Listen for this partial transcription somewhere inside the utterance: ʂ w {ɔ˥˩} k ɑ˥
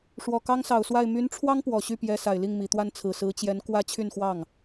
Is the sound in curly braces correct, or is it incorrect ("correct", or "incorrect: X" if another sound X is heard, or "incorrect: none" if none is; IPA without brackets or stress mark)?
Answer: incorrect: ɔ˨˩